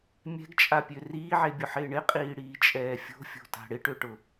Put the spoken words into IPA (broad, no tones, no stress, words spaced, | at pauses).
mʲɛ̤ɡt͡ʃʼapʲø riːʕebʲʊħɪː ɳɪqʼiːɽiːt͡ʃʼɛː fʲo̤fʲo̤ta̤ ɽɪʈøʈʊ